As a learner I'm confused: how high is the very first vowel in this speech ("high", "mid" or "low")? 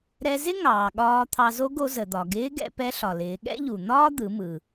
mid